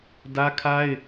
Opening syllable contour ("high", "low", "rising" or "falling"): high